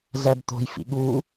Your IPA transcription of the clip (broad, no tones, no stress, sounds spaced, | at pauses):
z æ b t̪ o̤ j f ḭ ɠ u